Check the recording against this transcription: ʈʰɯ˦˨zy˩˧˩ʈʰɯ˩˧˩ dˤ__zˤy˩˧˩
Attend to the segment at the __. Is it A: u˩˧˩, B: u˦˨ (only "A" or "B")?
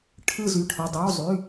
A